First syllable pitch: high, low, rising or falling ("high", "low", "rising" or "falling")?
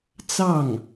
falling